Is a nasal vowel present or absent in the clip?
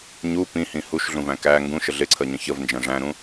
present